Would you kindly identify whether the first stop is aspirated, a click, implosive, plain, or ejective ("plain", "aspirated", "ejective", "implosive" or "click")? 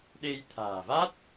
implosive